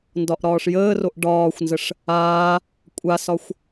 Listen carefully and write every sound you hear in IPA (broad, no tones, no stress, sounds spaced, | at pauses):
n d ɒ ʔ ɾ ɒː ʂ j əː r o ʔ ɖ ɒː xʷ n z ə ʂ | aː | kʷʼ a s ɒ xʷ